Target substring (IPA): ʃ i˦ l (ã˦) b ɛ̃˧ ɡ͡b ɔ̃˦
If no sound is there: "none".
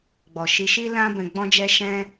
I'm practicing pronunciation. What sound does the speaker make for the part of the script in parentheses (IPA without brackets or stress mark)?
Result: ã˦